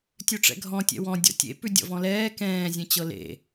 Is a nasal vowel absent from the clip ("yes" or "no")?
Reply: no